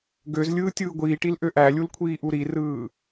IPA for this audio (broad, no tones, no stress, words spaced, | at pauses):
ɡøzlʲɯː tʲɯːɡʷiːʈil ʔøʔælʲul kʷʰiːʔuɾirɯː